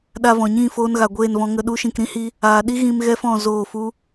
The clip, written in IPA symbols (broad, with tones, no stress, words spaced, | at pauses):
ɗa˧vɔ̃˨ɲĩ˦˨ foː˧nɣa˨ɡʷeː˦˨nvɔ̃˧ ŋə˧ɗu˦ ʃĩ˨kɾĩ˦hi˧ | aː˧ ɗi˦ ɣĩ˧m ɣɛ˦fɔ̃˦˨ zoː˦˨fu˦